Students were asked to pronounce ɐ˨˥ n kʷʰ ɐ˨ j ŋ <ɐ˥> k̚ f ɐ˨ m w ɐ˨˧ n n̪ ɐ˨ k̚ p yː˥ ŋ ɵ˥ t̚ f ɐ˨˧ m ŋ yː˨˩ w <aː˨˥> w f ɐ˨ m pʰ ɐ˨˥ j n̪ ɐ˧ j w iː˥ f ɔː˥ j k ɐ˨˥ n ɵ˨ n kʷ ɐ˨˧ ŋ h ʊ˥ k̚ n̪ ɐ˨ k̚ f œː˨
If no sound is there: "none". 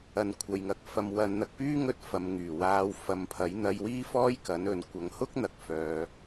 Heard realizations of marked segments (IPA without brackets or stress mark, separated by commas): ɐ˨, aː˨˧